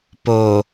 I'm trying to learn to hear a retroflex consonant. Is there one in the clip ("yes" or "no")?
no